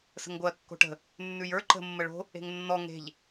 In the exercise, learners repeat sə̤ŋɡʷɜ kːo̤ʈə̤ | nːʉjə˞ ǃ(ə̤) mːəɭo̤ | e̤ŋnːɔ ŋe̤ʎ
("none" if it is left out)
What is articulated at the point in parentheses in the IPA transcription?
ə̤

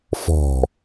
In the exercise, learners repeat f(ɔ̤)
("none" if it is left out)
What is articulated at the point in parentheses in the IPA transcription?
ɔ̤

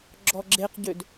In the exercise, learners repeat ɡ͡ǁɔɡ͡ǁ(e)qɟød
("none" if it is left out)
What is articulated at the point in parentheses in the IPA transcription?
e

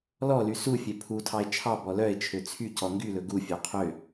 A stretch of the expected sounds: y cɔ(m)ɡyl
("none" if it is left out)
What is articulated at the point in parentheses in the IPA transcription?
ŋ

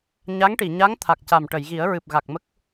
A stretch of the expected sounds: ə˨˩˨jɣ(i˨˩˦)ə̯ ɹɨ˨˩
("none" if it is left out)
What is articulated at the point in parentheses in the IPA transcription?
i˨˩˦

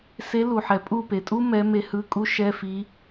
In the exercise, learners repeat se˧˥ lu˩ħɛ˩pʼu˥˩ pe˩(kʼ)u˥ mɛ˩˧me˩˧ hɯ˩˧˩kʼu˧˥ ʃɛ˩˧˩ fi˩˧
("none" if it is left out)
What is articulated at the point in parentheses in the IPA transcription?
tʼ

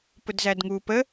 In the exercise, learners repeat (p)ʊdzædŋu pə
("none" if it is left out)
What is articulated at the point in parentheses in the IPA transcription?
p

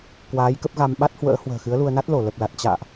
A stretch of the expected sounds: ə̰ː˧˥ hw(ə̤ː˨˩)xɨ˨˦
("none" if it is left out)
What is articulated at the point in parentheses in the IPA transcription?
ə̤ː˨˩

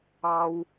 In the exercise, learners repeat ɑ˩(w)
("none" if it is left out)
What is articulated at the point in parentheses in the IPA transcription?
w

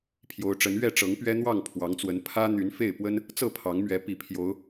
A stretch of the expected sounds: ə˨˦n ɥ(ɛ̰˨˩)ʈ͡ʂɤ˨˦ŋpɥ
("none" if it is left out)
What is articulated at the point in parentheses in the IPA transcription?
ɛ˥˨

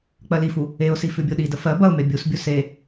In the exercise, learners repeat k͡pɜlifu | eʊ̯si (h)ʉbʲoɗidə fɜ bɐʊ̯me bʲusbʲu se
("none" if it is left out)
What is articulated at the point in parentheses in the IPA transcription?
f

